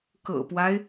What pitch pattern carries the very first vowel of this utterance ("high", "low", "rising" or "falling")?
low